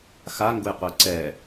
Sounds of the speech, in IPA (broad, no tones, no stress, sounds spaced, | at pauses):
x a ŋ ɡ ʊ j qʷ ɛ ǀ ɛ